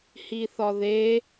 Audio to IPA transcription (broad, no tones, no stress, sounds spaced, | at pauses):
h i θ ɒ ð e